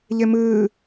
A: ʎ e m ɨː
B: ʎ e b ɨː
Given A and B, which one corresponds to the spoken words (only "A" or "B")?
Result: A